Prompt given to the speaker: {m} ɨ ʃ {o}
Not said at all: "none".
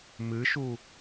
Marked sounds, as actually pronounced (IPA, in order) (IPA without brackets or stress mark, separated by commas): m, u